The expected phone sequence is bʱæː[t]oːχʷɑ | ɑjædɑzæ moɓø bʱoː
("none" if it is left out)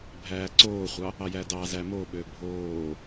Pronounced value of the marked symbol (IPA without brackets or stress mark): ǀ